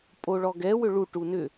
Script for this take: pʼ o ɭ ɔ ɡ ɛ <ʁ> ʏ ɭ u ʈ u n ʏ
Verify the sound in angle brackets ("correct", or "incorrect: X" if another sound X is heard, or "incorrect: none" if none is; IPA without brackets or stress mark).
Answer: incorrect: w